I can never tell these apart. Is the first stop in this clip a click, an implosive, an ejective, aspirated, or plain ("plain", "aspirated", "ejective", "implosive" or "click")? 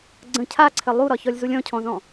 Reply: click